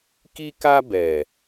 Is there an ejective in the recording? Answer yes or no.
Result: no